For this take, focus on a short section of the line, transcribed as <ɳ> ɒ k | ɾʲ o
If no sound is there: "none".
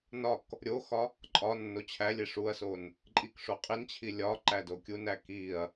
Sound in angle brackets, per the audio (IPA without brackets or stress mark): n